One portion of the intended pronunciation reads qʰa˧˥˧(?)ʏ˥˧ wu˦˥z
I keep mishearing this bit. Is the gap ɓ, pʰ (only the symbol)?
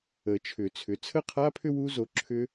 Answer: pʰ